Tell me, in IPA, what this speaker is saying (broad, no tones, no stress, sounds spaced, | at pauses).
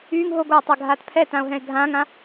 yː ŋ ɦ o ɡʷ aː tˤ a ɡʱ aː t pʰ ɛ t ã o̯ ɦ ɛ̃ e̯ ɡʱ ãː ŋ ã